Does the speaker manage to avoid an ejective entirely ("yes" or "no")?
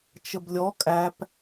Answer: no